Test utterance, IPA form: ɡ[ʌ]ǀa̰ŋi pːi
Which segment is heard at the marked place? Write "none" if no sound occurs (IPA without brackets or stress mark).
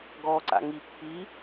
ɔ